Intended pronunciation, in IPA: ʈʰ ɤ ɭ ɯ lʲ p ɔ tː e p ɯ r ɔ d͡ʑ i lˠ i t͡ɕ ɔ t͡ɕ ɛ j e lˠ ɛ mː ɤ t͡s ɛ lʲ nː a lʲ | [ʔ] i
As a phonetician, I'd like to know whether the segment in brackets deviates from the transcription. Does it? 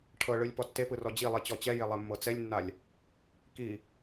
yes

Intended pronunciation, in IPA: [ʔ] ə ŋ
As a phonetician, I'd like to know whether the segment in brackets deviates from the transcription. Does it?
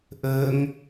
no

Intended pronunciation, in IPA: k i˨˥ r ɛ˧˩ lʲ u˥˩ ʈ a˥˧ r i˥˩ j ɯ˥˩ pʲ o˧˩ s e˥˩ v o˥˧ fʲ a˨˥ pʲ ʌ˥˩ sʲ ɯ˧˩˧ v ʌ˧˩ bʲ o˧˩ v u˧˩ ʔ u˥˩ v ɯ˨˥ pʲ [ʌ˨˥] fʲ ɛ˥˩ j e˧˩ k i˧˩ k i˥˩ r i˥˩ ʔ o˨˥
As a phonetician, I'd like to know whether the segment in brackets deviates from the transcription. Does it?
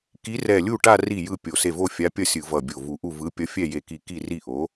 no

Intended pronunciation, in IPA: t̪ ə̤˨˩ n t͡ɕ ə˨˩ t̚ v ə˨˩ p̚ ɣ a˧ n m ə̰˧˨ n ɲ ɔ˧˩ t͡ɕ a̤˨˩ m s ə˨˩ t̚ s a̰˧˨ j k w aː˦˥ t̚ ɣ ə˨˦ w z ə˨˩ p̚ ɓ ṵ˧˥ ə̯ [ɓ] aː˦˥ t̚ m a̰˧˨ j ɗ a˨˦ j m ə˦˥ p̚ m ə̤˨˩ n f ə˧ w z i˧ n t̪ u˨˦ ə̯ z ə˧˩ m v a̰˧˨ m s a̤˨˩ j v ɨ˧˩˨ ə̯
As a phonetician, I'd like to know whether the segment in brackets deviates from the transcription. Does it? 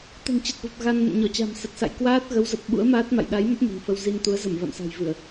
yes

